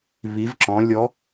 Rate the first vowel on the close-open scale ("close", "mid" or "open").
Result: close